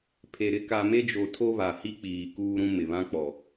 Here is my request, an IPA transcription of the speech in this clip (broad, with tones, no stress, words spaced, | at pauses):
pʰe˨ɾɪ˦ ka˨me˦d͡ʒo˨ tʰo˦βa˨hi˦k͡piː˨ kuː˦ɾũ˦ mɪ˨βã˦k͡pɔ˨